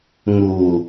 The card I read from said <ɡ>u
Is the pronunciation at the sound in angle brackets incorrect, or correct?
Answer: incorrect